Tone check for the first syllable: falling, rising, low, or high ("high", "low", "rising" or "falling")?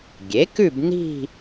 rising